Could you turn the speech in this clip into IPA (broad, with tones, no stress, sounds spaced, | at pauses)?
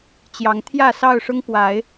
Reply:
t͡ɕ j ɑ˨˦ ŋ t̪ʰ j ä˥˨ s ɑ˥˨ ʊ̯ ʂ ʊ˦ ŋ p w a˨˦ ɪ̯